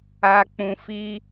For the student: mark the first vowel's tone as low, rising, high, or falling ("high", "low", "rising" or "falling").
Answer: low